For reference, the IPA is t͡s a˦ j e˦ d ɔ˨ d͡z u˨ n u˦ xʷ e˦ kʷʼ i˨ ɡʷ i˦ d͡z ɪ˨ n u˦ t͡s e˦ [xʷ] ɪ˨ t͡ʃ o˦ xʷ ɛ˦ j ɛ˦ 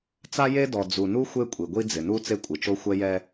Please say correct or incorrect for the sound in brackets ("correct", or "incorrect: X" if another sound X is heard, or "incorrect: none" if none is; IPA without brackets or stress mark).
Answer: incorrect: kʷʼ